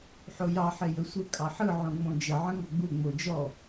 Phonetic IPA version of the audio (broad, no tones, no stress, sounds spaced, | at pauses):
ħ o j ɑ ħ e j ə sʷ ə kʼ ɑ ħ ɯ ʕ õ ŋ͡m õ d͡ʒ ə ʕ ə̃ ŋ ɔ ɡ͡b u ŋ͡m o d͡ʒ ɔ